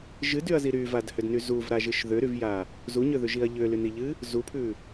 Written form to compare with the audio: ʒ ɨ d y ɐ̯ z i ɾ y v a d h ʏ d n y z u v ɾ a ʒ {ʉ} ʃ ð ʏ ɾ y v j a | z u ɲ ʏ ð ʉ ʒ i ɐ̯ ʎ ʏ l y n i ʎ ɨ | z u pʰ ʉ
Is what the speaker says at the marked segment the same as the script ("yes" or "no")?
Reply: no